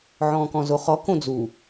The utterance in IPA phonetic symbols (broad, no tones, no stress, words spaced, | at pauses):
ʕɔ̃ːkɔ̃zoχɔ kõd͡zu